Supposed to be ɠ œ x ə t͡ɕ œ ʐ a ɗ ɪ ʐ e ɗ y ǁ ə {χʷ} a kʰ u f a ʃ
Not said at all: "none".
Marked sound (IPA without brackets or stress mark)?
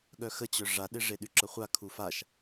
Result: χʷ